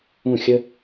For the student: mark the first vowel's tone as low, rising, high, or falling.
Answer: falling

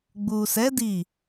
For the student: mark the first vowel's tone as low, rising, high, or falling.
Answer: low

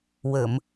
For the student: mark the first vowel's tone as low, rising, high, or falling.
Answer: low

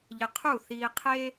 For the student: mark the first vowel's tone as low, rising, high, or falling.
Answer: low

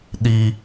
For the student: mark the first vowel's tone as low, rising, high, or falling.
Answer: low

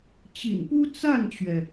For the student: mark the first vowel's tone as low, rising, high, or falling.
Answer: low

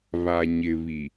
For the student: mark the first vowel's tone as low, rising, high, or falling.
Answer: low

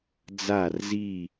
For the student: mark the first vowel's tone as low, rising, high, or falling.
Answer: falling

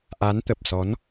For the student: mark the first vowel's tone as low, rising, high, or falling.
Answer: rising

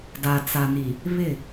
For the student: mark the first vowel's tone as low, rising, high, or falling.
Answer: low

